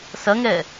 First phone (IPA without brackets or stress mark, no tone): s